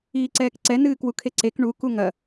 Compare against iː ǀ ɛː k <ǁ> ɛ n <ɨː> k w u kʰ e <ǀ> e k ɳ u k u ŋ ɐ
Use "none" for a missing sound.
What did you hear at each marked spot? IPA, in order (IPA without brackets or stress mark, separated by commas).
ǀ, ɨː, ǀ